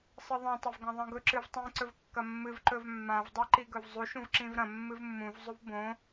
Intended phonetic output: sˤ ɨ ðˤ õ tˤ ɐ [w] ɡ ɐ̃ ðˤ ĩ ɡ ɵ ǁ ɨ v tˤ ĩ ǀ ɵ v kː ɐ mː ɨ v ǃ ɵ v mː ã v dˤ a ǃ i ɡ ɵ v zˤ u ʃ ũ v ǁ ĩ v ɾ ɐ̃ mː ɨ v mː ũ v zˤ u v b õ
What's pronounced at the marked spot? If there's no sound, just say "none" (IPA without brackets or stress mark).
v